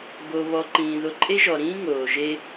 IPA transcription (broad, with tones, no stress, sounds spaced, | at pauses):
b o˩ β ɔ˩ ǃ ĩː˩ ð o˧ ǃʼ e˥ ʒ ɔ˩ ɾ ĩː˥ ŋ oː˩ ʒ e˥